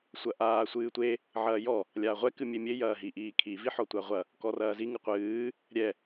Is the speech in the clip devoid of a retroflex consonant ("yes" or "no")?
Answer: yes